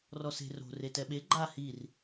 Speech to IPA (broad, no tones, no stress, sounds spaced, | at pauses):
r ɔ s e̤ r o̤ r e t ɛ ɓ e ɡ͡ǃ a h i r